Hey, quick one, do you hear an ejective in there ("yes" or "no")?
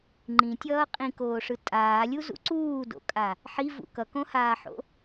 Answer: yes